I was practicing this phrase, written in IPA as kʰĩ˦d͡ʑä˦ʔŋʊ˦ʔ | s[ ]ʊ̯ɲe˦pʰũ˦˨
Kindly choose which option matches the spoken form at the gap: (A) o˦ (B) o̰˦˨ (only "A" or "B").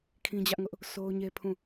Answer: A